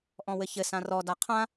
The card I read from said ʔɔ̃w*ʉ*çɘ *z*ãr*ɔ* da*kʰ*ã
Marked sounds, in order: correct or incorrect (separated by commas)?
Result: incorrect, incorrect, correct, incorrect